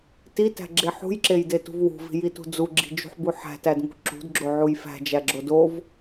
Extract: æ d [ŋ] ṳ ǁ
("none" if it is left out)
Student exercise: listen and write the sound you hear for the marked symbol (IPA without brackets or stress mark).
ŋ